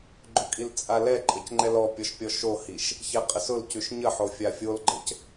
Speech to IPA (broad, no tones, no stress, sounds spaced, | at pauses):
ɡ͡ǃ ʊ kʼ i l t͡sʼ a l ɛ ǃʼ ə c ŋ͡ǃ ɛ l ɔ pʲ ɔ ʃ pʲ ɔ ʃ o h i ʃ | ç ɛ qʼ ə s ʊ l c ʉ ʃ ɲ ə ħ o fʲ a fʲ o l ɡ͡ǃ ə c